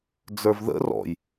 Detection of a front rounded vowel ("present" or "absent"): absent